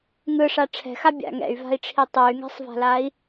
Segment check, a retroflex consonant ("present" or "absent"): present